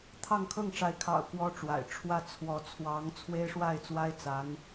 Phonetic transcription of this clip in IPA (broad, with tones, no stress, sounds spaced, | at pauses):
t̪ʰ ɑ˥˧ ŋ kʰ ɤ˥˩ ŋ ʈ͡ʂ a˧˥ ɪ̯ kʰ ɑ̰˨˩ ʊ̯ k w ɔ˥ ʈ͡ʂ w a̰˨˩ ɪ̯ ʈ͡ʂʰ w ä˥˩ t͡sʰ w ɔ˧˥ t͡sʰ w ɑ˧˥ ŋ t͡sʰ w e˥ ɪ̯ ʂ w a˥˩ ɪ̯ t͡s w a˥ ɪ̯ t͡s a˧˥ n